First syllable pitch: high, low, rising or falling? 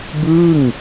falling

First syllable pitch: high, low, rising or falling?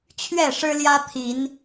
falling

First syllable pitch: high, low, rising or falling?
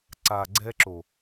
low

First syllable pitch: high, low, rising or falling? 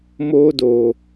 high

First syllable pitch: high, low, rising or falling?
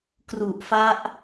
low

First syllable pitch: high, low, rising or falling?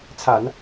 low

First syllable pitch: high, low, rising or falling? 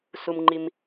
low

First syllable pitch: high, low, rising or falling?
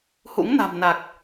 rising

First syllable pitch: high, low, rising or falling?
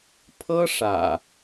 high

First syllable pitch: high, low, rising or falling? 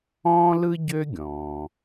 high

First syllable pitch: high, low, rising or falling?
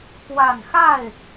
low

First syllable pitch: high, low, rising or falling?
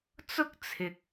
high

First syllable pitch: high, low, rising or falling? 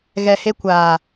low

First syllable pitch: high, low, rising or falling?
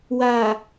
low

